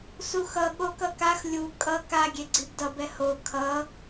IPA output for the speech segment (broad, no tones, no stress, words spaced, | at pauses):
suxʌ ɠokʌkax lʲu kʼʌ ka ɡʲeɡ͡ǀibdʌb ɛho kʰʌ